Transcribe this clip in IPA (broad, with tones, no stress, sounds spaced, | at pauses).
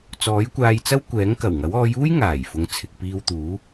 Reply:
t͡s ɔː˨˥ j kʷ aː˧ j t͡s ɐ˥ w kʷ ɛː˨˥ ŋ k ɐ˨˩ w ŋ ɐ˨˥ w ɔː˨˧ j uː˥ j ŋ aː˨˩ j f ʊ˨˧ ŋ t͡sʰ ɪ˨ k̚ p iː˧ w t̪ uː˨˥